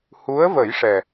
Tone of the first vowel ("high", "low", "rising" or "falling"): rising